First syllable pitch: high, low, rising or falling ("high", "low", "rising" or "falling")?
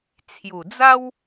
low